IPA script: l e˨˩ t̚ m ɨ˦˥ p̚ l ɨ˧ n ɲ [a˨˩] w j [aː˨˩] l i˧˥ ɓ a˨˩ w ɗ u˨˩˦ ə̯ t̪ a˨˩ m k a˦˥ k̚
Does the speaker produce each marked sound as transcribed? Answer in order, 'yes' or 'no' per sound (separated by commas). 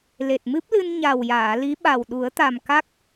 yes, no